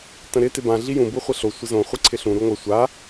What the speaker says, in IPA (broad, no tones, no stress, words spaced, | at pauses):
tə̃ɾɪ tɪbã ɮijũ buχʷɪɬo sʷɪzõ χʷiǀʰɪɬũ ɾuŋʷə sʷa